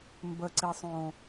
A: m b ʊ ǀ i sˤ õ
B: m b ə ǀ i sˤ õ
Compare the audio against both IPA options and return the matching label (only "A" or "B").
B